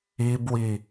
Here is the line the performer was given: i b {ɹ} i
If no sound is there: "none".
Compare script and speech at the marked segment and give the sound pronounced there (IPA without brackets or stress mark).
w